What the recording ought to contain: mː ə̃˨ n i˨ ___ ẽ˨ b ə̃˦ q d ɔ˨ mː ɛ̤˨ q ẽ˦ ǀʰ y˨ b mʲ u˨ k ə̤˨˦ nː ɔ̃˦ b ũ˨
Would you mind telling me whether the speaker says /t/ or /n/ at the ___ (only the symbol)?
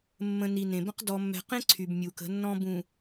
n